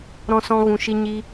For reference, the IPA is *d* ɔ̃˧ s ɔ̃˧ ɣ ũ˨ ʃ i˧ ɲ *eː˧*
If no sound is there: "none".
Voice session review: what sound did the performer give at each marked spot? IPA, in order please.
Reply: ɾ, iː˧

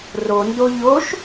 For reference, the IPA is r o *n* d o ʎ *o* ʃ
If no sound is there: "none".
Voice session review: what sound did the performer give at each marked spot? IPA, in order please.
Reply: n, o

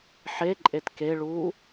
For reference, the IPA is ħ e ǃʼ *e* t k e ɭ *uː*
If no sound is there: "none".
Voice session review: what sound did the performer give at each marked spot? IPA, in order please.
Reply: e, uː

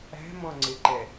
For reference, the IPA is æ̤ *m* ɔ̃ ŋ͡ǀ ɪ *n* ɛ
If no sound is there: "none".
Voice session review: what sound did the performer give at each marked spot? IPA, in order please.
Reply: m, ǃ

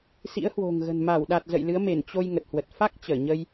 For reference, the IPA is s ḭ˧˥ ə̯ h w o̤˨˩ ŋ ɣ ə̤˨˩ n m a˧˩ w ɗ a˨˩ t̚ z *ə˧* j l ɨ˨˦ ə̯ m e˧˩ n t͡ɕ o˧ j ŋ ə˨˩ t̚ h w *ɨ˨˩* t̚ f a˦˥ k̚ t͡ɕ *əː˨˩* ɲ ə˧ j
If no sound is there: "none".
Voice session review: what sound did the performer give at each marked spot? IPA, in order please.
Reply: ə̰˧˨, ə˨˩, əː˧˩

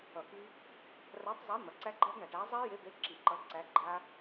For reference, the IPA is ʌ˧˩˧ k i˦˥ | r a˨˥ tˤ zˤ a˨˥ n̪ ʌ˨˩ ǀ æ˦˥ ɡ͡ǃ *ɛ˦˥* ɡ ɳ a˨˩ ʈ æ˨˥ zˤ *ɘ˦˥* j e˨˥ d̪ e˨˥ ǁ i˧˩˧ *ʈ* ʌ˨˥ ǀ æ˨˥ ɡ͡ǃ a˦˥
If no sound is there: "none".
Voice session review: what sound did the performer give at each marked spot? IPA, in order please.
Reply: æ˦˥, ɛ˦˥, ǃ

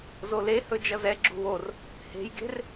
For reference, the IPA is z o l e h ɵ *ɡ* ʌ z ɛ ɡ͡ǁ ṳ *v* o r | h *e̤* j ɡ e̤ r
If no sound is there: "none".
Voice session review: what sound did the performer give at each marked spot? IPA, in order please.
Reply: d͡ʒ, w, e̤

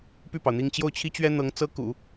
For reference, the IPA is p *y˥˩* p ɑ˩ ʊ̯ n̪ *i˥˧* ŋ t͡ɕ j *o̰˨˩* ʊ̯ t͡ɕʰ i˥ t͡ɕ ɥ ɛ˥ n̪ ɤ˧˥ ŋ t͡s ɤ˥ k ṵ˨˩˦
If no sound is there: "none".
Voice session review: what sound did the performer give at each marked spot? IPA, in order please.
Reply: y˥˩, i˥˧, o˥˩

